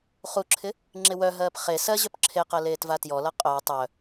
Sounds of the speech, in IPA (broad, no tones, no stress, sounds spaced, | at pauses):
χ u ǁʰ ɪ | ŋ͡ǁ ɪ w œ ɦ ɜː p χ e s ɜ ʑ œ p ǁʰ e q ɜ l eː t v a t j ɔ l ʌ qʼ œ w tˤ œ